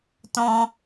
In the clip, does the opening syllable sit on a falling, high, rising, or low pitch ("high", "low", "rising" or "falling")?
high